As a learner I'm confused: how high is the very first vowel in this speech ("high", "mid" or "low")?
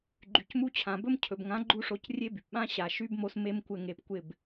high